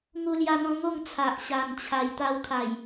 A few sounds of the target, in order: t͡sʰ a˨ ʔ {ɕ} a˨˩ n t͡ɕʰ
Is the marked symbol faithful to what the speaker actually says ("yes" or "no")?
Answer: yes